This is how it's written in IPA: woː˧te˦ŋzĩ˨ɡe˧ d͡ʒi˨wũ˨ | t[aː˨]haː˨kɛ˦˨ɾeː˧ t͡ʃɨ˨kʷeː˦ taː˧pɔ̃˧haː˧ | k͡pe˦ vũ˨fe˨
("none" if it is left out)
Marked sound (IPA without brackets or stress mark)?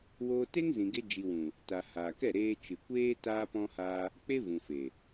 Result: a˨